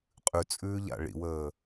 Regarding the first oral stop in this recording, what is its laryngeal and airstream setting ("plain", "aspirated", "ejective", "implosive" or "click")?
ejective